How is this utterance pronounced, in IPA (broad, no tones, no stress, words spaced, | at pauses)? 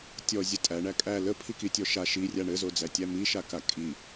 tʲɔzʲə tʼæ ɳækʼæ ləpʰiki tʲɔʃa ʃirʲa ɳɘzod͡zætʲæ miʃaka kʼi